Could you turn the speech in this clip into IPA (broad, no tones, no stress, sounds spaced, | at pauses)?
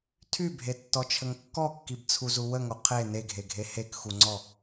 tʰ y bʱ e tː ɔ t͡ʃʰ ə ŋ kː ɔ kː i b t͡sʰ u z u w ə ŋ o qʰ e n e ɡʱ e ɡʱ e h e k x u ŋ͡ǀ ɔ